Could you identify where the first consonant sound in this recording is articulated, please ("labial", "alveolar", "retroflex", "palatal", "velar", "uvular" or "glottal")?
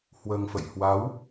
glottal